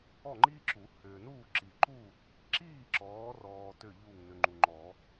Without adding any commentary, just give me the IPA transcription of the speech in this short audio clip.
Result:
ɔ˥˨ ŋ͡ǃ iː˥ ǁ u˨˩˦ h ʏː˨ n uː˥˨ ǁ i˨ ǃ u˥˨ | ǁ iː˥˨ ǁ ɔː˨˦ r ɔː˨ t ʏ˥˨ ʎ u˥˨ ŋ n ʏ˨ ŋ͡ǃ u˨ ŋ͡ǃ ɔ˨˩˦

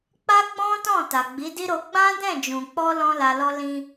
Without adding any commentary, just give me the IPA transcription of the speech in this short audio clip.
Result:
k͡p a˦ ɡ͡b ɔ̃˦ t ɔ̃˦˨ t a˨ ɡ͡b i˨˦ d i˦ ɾ o˧ ɡ͡b ã˦ d ɛ̃˦˨ d͡ʒ ũ˨ k͡p ɔ˧ l ɔ̃˦ l a˧ l ɔ˦ l ĩ˦

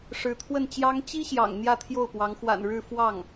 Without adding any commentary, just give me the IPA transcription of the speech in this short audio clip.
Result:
ʂ ɻ̩˧˥ t̪ʰ w ə˥˩ n t͡ɕ j ɑ˥ ŋ t͡ɕ i˥ ɕ j ɑ̰˨˩ ŋ n̪ j ä˥˧ t̪ʰ j o˥˩ ʊ̯ p w ɑ˧˥ ŋ x w a̰˨˩ n ɻ ɻ̩˥˧ f w ɑ˥˩ ŋ

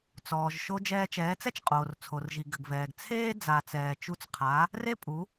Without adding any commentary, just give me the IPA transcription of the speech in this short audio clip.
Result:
t͡s ɔː˩ ʒ ʃ o˧ d͡ʒ ɛː˧ t͡ʃ ɛː˩˥ t͡s ɛ˥ t͡ʃ qʼ oː˩ r t͡sʰ o˩ r ʒ i˩ ɡ ɘ˩ ɡ v ɛː˩ ɡ t͡sʰ eː˥ d͡z a˩ t͡s ɛː˩ t͡ʃ u˧ t͡s qʰ a˩˥ | r e˥ pʼ u˩˥

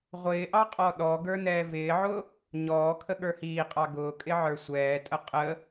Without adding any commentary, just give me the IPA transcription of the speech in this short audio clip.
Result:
ʁʷ ɪː ʔ ɑ qʼ ɔ ɗ ɔ ɡ ə˞ n ɛː v ɪː ʕ ʊ | ɲ ɔː kʰ ə ɠ ə˞ h iː qʼ ɑ ɡ ʊː kʼ ɪ ʕ ə˞ sʷ ɛː tʼ ə qʼ ə

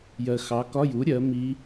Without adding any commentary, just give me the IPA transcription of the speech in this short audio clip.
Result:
j ɜ˨ x ɑ˩˥ k ɒ˧˥˧ j u˩˥ ɾʲ ɜ˩˥ m i˧˥

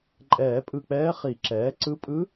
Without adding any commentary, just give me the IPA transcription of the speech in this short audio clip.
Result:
ǃʼ ɛː˨˩˦ pʼ ɯ˧˩ k͡p ɛː˧˥ χ i˨˩˦ ǁ ɛː˩˥ ǀ ɯ˧˥ pʼ ɯ˧˥

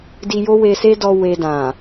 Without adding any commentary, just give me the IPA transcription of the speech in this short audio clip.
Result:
d i˧ j o˦ w e˧ s e˦ d ɔ˦ w e˧ d ã˨

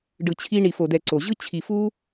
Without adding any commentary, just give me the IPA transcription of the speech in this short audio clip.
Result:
ɖ ɯ˨ t͡ɕʰ i˧ ɳ i˨ f o˨ d ɛ˨ ǀ o˨ ʑ ɯ˦ t͡ɕʰ i˨ f u˦

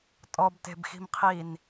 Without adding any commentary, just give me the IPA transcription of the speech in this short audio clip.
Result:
tʼ ɔ b t e̤ b x i̤ m qʰ i n

